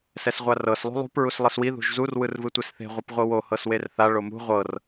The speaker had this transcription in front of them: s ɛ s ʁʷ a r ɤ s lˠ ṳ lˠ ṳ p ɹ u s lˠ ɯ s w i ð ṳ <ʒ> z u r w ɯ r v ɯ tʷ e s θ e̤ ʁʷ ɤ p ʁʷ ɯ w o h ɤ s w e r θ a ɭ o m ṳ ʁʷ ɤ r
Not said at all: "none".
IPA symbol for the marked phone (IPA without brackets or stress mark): ʒ